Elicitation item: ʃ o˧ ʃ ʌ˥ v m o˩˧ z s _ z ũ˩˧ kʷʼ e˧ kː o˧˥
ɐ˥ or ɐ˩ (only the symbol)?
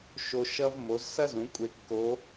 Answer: ɐ˥